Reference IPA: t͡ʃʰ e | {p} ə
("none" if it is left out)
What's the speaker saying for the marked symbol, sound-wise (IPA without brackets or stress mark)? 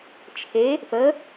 p